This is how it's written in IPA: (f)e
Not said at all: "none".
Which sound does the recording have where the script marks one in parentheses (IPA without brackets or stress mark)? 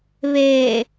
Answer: β